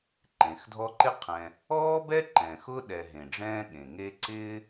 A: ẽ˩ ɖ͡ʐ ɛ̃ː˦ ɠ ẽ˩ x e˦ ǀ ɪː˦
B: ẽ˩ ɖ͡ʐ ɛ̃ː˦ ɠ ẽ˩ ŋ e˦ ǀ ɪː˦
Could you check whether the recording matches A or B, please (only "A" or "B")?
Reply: B